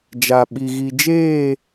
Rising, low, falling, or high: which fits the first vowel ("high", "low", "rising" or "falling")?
low